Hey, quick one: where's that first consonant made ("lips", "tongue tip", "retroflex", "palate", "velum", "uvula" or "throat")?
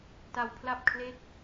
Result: tongue tip